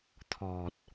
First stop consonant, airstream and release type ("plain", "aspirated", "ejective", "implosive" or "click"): aspirated